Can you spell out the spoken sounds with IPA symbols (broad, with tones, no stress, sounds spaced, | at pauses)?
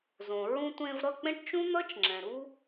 z õ˨ ɹ ũ˧ tʷ ẽ˧ v ɾ ʌ˦˨ k͡p ẽ˦ ʈ t͡ʃ ũ˦ n̪ ʌ˦ t͡ʃ ŋ͡ǁ ɛ̃˨ ɾ u˦